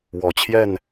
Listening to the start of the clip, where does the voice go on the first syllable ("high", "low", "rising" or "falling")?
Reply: low